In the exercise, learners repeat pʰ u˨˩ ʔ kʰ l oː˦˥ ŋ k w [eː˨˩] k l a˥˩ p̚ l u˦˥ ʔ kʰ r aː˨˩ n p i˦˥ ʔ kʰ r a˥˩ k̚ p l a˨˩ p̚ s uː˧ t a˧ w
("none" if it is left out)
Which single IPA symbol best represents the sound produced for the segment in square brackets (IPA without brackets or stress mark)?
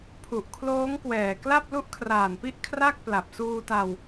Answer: ɛː˨˩